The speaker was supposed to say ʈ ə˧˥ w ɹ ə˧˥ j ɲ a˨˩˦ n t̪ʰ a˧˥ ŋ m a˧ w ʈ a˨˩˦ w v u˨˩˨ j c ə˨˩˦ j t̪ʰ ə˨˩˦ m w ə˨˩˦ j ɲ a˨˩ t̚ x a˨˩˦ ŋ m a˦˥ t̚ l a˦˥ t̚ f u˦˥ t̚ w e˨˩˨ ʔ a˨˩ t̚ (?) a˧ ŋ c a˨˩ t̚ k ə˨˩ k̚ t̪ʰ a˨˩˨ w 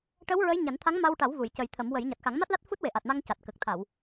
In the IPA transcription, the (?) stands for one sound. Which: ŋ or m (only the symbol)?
m